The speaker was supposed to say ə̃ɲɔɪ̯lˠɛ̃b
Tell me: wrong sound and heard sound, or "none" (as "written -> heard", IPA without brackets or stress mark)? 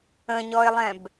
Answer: none